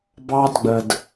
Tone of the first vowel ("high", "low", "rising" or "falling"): high